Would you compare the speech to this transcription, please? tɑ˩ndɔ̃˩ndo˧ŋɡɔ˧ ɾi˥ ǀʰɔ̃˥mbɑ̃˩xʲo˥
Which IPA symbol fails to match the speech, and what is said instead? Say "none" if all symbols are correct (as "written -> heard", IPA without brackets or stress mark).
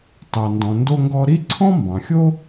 none